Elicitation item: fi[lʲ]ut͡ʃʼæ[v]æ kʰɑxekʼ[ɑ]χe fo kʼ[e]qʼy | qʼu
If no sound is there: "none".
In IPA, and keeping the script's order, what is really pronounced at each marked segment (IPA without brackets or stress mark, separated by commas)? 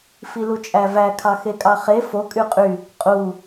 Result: l, v, ɑ, y